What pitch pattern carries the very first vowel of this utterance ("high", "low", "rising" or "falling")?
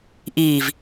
low